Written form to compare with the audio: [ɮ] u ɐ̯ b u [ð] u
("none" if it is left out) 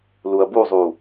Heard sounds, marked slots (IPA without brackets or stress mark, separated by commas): l, zˤ